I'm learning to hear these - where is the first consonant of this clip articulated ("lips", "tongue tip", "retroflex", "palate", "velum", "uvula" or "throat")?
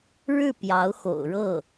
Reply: retroflex